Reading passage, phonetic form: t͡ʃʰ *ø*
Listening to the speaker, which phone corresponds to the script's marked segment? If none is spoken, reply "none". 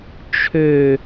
ø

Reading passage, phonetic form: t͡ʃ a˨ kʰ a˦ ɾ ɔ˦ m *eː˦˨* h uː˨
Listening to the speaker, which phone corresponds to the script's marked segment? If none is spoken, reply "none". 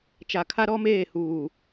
eː˦˨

